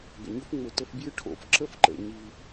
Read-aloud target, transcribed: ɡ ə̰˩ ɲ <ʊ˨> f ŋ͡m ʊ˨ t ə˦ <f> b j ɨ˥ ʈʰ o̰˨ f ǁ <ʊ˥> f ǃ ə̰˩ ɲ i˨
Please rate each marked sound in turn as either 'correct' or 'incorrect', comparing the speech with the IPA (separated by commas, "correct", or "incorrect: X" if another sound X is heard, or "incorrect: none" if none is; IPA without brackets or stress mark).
incorrect: ʊ˥, correct, incorrect: ə˥